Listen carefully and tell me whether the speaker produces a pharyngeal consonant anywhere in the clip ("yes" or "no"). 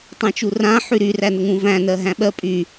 yes